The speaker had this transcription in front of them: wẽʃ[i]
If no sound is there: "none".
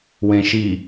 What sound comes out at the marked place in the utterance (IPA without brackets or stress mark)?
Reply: i